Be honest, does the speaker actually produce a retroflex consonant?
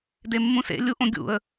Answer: no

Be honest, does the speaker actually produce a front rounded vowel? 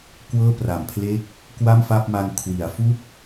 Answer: no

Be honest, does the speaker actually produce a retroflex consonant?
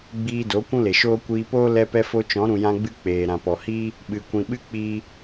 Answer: no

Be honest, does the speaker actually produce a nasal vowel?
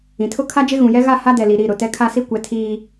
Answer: yes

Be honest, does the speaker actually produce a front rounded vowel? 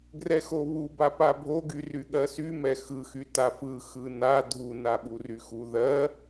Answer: yes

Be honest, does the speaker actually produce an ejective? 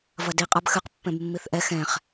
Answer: yes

